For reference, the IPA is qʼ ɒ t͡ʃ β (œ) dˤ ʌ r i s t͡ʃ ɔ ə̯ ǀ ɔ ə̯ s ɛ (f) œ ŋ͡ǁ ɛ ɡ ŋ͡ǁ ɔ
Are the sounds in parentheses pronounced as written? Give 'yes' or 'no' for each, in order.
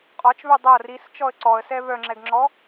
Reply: yes, no

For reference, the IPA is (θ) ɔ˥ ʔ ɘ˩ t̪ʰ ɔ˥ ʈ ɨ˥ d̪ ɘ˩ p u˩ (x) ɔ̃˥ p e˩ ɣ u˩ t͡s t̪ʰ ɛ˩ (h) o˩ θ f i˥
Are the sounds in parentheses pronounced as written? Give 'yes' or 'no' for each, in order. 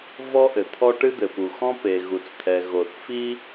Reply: no, yes, no

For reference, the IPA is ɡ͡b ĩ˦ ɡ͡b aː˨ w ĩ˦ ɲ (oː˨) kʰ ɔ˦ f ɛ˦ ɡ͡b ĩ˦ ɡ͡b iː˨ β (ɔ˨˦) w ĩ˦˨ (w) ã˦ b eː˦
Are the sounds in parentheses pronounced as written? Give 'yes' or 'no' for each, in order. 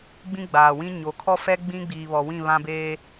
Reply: no, no, no

